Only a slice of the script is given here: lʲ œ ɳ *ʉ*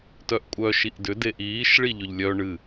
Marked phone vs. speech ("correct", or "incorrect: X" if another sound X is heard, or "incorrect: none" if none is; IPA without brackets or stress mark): incorrect: ɨ